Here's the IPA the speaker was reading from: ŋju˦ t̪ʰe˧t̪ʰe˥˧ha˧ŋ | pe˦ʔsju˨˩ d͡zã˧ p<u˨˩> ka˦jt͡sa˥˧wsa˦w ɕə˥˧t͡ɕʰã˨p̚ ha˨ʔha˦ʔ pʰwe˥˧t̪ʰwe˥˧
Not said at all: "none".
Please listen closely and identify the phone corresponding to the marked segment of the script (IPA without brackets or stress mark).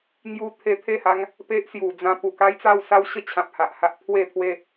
u˨˩